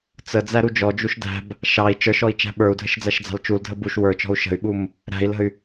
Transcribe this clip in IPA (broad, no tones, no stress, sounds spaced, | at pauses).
t͡s ə d͡z æ ɾ u d͡ʒ ɔ d͡ʒ u ʃ d æ̤ b | ʃ ɑ i̯ t͡ʃ ə˞ ʃ ɔ i̯ t͡ʃ æ̤ ɓ ə˞ u̯ dʱ ə ʃ d͡z æ ʃ d͡z ɑ̤ l t͡ʃ u l dʱ ə b u ʃ w ə˞ t͡ʃ ɔ̤ u̯ ʃ ə̤ y̯ ɓ u m | ɾ æ̤ i̯ l ə̤ y̯